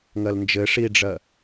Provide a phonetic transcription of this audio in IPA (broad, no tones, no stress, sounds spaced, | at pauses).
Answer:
ŋ ɜ l n d͡ʒ ɘ ʂ i ɖ͡ʐ ɜ